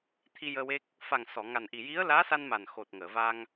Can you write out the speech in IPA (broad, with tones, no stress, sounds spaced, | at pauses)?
t̪ʰ i˧ j əː˧ w e˦˥ k̚ | f a˨˩ ŋ s ɔ˨˩˨ ŋ a˨˩ n ʔ i˨˩ j i˧˥ ə̯ l aː˧˥ s a˧ n m a˨˩ n x o˨˩ t̚ ŋ əː˨˩˨ v a˧ ŋ